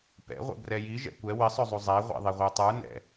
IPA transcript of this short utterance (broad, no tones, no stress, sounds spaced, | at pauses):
p ɛ̰ ʁʷ ɛ̰ b r ɛ j i ʒ ɛ̰ kʷ ɛ w ɪ sˤ ɵ zˤ u zˤ æ ʁʷ ɛ̰ ðˤ e ʁʷ ə˞ tˤ ə˞ n ɛ̰